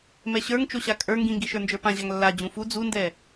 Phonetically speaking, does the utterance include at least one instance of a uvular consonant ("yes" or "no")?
no